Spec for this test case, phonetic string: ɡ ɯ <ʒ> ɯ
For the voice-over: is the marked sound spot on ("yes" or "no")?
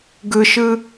no